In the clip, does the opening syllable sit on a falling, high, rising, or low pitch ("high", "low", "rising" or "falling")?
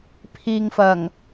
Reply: low